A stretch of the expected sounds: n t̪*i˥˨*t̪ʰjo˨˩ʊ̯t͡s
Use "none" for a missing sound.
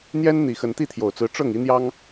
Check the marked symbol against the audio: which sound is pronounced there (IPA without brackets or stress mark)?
i˥˨